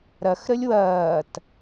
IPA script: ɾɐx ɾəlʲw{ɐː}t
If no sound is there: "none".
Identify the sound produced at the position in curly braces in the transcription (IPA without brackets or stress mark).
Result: ɐː